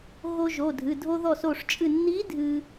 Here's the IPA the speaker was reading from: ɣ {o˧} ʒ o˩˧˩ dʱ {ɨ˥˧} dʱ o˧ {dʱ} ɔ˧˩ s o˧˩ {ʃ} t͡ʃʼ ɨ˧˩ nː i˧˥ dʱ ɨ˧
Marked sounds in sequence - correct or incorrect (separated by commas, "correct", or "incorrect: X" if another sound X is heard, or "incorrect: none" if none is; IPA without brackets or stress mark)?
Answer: correct, incorrect: ɨ˩˧˩, incorrect: ð, incorrect: ʂ